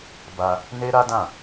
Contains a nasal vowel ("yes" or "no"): yes